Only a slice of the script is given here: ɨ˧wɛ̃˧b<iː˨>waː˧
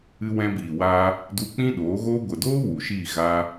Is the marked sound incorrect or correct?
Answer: correct